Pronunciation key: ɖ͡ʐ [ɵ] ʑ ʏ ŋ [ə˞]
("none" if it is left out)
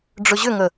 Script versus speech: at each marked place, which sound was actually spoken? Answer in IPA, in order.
ɵ, ə

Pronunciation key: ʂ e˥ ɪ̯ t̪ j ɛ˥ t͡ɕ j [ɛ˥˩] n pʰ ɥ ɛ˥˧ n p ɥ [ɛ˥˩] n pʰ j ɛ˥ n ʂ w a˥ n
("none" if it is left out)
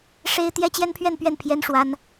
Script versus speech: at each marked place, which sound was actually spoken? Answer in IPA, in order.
ɛ˥, ɛ˥˩

